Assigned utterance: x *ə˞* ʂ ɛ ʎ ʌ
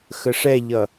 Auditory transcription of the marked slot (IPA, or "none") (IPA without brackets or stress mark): ə